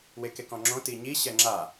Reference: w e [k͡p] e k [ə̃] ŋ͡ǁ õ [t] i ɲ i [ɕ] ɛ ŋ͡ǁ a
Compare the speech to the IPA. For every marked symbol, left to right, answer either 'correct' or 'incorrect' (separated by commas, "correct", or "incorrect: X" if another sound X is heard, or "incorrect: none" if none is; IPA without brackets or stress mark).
incorrect: k, incorrect: ɔ̃, correct, correct